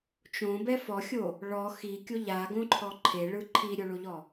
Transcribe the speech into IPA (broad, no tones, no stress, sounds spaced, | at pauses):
t͡ʃ õ b ɛ f ɔ xʲ o | ɭ ɔ x i kʲ o ʎ a ɡ õ ǃʰ ɔ ǃʰ e ɭ ɯ ǃʰ i ɾʲ o ɭ o ʎ ɔ